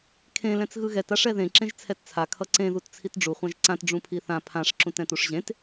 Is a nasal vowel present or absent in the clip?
present